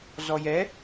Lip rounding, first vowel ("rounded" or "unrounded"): rounded